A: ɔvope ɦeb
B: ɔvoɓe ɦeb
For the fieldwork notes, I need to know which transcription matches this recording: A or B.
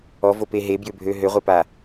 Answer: A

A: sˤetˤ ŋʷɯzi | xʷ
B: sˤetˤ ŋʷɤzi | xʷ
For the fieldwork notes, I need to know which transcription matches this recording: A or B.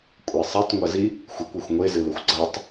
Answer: B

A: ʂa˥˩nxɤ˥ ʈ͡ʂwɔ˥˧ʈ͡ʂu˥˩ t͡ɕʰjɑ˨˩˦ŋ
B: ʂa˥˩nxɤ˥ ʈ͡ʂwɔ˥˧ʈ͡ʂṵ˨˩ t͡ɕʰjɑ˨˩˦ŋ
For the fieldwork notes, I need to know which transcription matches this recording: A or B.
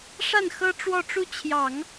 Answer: A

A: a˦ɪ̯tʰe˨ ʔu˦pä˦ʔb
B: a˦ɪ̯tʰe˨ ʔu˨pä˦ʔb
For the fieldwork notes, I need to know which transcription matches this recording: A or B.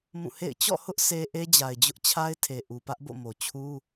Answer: B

